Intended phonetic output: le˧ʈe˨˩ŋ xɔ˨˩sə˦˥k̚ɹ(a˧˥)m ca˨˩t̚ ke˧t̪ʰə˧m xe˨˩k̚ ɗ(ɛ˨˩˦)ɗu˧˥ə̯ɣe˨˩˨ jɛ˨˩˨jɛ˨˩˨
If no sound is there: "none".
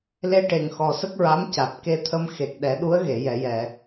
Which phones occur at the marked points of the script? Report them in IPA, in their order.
a˧˥, ɛ˨˩˦

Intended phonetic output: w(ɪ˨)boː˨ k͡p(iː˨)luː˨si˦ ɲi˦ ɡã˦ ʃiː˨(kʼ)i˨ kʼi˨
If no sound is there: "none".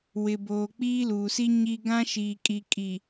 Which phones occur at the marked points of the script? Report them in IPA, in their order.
ɪ˨, iː˦, kʼ

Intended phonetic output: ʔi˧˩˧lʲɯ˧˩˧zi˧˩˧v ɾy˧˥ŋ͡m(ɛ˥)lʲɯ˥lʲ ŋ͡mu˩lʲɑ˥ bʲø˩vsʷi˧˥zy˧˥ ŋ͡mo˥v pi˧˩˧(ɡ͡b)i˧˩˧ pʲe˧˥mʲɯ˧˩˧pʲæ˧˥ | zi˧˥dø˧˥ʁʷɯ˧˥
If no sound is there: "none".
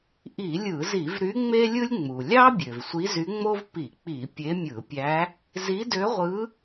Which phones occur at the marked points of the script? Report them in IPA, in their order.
e˥, k͡p

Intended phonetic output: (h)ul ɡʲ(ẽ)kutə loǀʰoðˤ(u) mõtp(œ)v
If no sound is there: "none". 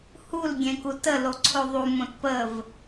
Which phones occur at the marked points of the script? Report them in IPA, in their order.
h, ẽ, u, ə

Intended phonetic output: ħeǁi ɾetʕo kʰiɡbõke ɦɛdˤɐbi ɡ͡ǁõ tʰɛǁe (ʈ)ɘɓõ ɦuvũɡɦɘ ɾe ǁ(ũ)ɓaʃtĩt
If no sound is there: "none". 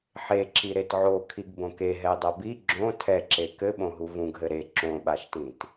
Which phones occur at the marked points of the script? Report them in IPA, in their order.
k, õ

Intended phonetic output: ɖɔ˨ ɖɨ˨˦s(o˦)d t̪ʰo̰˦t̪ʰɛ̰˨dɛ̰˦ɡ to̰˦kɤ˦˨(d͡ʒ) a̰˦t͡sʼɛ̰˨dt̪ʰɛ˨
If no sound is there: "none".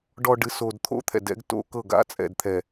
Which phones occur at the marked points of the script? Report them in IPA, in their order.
o˨, ɡ

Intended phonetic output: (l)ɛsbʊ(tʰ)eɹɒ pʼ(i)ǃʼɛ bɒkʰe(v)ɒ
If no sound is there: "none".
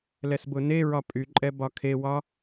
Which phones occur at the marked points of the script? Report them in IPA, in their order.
l, n, y, w

